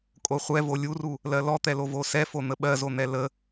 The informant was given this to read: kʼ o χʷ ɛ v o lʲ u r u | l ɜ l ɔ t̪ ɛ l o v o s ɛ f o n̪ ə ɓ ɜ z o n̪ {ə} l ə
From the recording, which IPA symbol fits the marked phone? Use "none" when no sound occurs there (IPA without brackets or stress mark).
ɛ